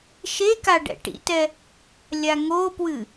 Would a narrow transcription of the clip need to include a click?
no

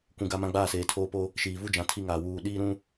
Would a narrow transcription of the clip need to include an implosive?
yes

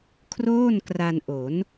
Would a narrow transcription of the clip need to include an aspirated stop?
yes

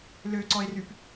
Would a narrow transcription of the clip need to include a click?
yes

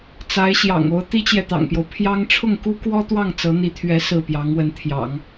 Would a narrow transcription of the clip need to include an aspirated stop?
yes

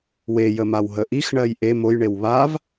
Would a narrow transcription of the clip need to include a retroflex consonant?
yes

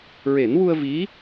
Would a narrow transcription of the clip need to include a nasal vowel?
no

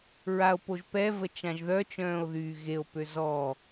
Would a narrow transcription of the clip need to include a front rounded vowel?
yes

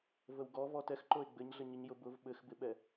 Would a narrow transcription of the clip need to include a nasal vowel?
no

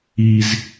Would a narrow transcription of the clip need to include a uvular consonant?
no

